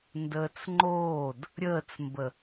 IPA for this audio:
ndəːt͡sŋ͡ǃoːd | ɾʲəːt͡smbə

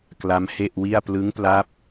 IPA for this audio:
kla˦˥mhe˥˩ʔwi˥˩a̯ plɯ˦˥ŋpla˦˥p̚

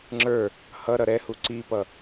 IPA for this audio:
ŋ͡ǁə˞ | hʌɾʌ ɾɛhu ǀipʌ

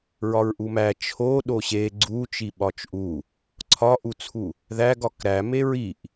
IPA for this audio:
ɹɒɹʔumæ t͡ʃʰo ɗoɕe ɡ͡ǀu t͡ʃiɓɒt͡ʃʔu | ǀʰɒʔut͡sʰu | ðæɡ ɒkɾæ meɹiʔ

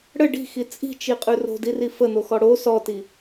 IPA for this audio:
ɽə ɖi̤xi t͡sʼi̤t͡ʃiqʼʉ ro̤diri fən̪oxɔ ɽo sɔti

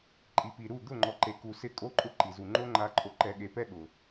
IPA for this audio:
ǃʼi˨pi˨ɾu˦˨ d̪ʊ˦˨ŋ͡ǃɔ˨ǃe˨ku˨ sɪ˦˨kʼo˦ǃʼʊ˦ ǃi˨zu˨ ŋ͡ǃo˦ŋ͡ǃa˧ ǃʼo˧ǃɛ˧ɠe˧ pɛ˦ɠʊ˨

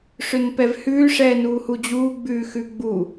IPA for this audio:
ʂʏnpɛvhʉː ʂɛːnuːhud͡ʑuː ɡ͡bʉːxʉɡ͡bu

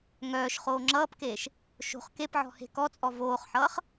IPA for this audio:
ŋœːʃ χoːŋ͡ǁʌːpkeːʃ | ʃo̤χ kep ʕɔ̤he̤kɔt͡sʼɔ voːχħʌːχ

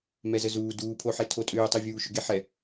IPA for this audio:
mɛzəzuː duːpʰoħe tʰotʼʏːtˤivʲuː ʃʏɡeħɛ

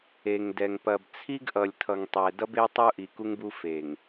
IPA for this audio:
e˨ŋ dɛ˨ŋ pɐ˨bt͡sʰi˦ɡʔʌ˨lʲtʰʌ˨ŋ tˤɛ˨dʌ˦be˦ tˤu˦ʔi˨ku˦ŋbu˦ fe˨ŋ

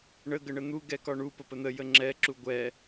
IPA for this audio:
ɳə ɡəɳən̪u ɡɛkɒɳu pəpən̪ə jəŋ͡ǁɛ ǁuɡʷɛ

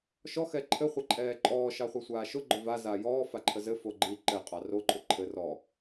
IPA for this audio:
ʃɔ xɛǃʰɘ χʷəǃʼɛːǃʼɔː ʃɑχʷɛsʷaːʃʊ ɡ͡ǃʊva zaːjɔː faǃʰəzɘ foɡ͡ǃi ǃɘ qʼɑro ǃʼʊǃʰɘ rɔ

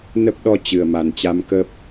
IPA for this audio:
nə˦˥p̚ɗɔ˧ t͡ɕɨ˨˩ə̯ma˨˩nt͡ɕa˧mkə˦˥p̚

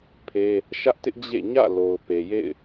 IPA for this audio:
pʰe˦ | ʃä˦ʔtɪ˦ʔ d͡ʑḛ˦˨ ɲä̰˦˨lo˨ʊ̯pe˨jḛ˦˨ɪ̯

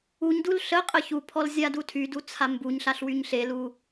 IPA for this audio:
uɲdul ɬəqʼə çupʰɔl zʲadutʰydu t͡sʰambuɲɬaɬ wyɲɬelu

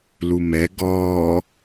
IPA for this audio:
lumɛ ɡɔː

